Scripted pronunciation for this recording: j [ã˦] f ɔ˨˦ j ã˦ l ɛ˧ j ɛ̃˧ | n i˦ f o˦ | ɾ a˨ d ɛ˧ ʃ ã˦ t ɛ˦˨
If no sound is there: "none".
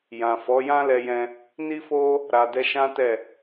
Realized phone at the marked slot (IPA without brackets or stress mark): ã˨